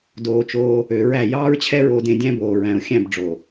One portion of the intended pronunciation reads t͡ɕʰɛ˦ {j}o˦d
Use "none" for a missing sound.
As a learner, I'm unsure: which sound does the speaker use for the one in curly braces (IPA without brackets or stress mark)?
ɹ